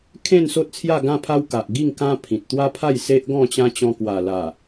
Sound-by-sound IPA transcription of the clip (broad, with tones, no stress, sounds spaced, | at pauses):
kʰ ẽ˥˧ n s o˦ t̚ t͡sʰ j a˥˧ ɡ ã˥˧ pʰ a˦ w k a˨ ʔ ɡ i˥˧ ŋ k ã˦ pʰ ĩ˨ t̚ t̪ w a˦ pʰ a˥˧ j s e˦ ʔ ɡ ɔ̃˥˧ t͡ɕ ã˦ t͡ɕ ɔ̃˧ k w a˨˩ l a˨˩